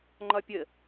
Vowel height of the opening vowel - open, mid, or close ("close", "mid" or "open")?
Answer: open